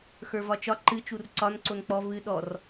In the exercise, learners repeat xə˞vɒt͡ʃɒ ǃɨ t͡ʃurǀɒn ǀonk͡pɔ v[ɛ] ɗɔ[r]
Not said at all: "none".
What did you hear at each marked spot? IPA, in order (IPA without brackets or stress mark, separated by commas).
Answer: ɨ, r